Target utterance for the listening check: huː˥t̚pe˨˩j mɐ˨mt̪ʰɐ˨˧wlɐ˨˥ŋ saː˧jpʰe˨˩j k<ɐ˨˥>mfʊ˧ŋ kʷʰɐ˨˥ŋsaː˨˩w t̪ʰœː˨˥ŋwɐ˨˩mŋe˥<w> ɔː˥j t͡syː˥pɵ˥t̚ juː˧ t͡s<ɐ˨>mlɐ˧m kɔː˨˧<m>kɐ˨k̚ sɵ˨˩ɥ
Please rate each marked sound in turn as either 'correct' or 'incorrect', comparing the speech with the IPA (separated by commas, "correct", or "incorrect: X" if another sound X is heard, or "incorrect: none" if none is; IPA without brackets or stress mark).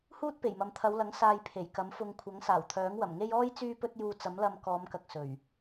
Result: correct, incorrect: j, incorrect: ɐ˨˥, correct